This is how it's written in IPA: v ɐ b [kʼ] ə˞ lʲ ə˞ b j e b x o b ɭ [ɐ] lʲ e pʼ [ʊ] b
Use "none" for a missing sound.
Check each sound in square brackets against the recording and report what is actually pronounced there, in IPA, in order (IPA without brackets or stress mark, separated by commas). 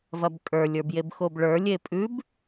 kʼ, ə˞, ʉ